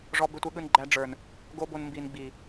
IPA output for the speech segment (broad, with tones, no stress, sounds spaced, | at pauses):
ʐ ɔ˧ b e˧ tʷ e˧ ɠ ɯ˧ n ɡ͡ǃ æ˧ ɖ͡ʐ ə˞˨ n | ɡ o˦ b o˧ n m b i˨ n ɡ͡b i˨